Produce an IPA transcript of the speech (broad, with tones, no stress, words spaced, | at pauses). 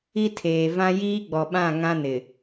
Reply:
i˦tʰeː˨vã˦ jiː˦ɡ͡bɔ˨ɓã˦˨ ŋã˦nɪ˨